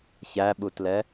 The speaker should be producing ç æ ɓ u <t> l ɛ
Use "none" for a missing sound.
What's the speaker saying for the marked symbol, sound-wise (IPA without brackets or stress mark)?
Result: t